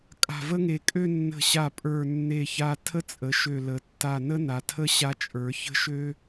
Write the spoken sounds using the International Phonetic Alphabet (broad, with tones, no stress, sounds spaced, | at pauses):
kʼ a̤˧˩ v ə˥ ŋ e˧˩ kʼ ø˥˧ nː ə̤˧˩ ɕ a˧˩ pʼ ə˞˧˩ nː e˧˩ ç a˧ tʰ ə˥ t͡sʼ ə˩˧ ʃ ø˧˩ l ə˩˧ tː a˧˩ n ə˥ n a˩˧ tʰ ə˥ ɕ a˧ t͡ʃʼ ə˞˩˧ ç ə̤˥ ʃ ø˥